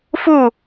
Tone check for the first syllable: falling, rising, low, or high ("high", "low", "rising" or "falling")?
falling